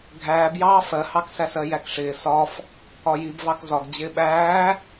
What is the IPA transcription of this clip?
ɡʱ æː b j ɑː f ɜ h ɑ k s æ s ɜ j æ k ʂ ɪː s ɒ f | ɒ j i b v ɑ k z ɒ ɡ d͡ʑ ɪː ɓ æː

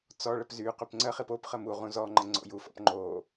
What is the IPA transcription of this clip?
t͡s ɔ ɭ ə p z y q y p ŋ͡ǀ ə χ i p o p χ ə m u ʁ ũ z ɔ ŋ͡ǃ ə ŋ͡ǀ o̰ j u f ɔ̰ p ŋ͡ǃ o

